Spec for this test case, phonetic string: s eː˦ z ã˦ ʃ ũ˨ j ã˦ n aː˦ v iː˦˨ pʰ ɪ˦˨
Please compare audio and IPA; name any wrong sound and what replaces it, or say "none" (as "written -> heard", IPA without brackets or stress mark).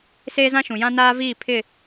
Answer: none